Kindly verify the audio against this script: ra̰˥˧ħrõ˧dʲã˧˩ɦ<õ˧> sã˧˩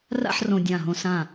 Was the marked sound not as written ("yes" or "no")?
no